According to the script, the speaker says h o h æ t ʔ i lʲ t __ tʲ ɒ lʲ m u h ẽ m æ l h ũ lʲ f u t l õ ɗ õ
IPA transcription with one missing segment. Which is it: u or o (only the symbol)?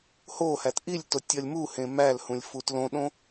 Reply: o